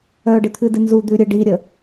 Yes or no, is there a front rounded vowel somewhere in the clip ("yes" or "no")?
yes